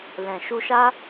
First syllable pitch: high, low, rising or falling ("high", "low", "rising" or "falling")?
low